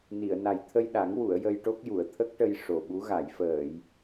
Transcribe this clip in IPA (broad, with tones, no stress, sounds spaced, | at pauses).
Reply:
n i˨˩˨ ə̯ n a˨˩ j t̪ʰ ə˧ j ɗ a˨˩˦ ŋ w u˨˩˨ ə̯ j ə˧ j ʈ o˦˥ k̚ j u˨˩˨ ə̯ t̪ʰ ə˦˥ k̚ ʈ ə˧ j ʂ o˨˩ ɓ u˧˥ ɣ a˨˩˨ j f əː˨˩˨ j